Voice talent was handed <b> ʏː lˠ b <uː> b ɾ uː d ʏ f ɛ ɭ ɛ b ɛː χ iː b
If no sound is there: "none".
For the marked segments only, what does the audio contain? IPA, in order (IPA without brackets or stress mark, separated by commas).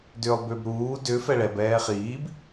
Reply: d, ʏː